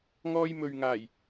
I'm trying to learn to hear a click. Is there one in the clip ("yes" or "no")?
no